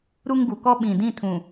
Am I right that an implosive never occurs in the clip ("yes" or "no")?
no